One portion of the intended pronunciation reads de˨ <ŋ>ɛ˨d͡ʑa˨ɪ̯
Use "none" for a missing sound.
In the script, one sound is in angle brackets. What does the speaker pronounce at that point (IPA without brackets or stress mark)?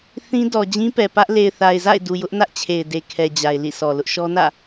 kʰ